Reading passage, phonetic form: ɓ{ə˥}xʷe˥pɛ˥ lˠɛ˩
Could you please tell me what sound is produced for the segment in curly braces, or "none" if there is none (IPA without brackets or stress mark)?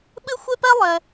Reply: ɨ˥